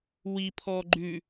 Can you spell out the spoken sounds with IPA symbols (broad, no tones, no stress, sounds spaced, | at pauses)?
w i pʰ ɔː ɡ͡ǃ ʉ